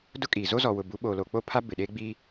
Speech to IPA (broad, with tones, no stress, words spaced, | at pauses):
dʊ˦kʼiː˨ zo˦zɔ˨wʊ˨ bu˨˦ɓoː˨lo˨ k͡po˦pʰa˦ bɪ˨ɗeː˦ɡ͡biː˦